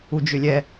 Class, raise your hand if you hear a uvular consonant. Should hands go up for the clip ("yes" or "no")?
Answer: no